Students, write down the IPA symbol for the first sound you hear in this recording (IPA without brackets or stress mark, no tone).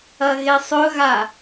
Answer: ɐ